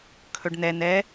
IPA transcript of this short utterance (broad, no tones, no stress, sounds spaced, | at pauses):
kʰ ɵ ɖ n̪ ɛ n̪ ɛ